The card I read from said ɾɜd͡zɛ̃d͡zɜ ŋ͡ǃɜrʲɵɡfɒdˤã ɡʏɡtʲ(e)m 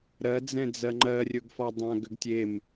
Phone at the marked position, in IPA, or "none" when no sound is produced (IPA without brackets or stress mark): e